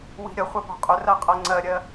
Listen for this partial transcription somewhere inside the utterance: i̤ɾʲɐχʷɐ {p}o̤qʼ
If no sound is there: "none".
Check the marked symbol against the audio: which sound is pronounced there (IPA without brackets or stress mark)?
p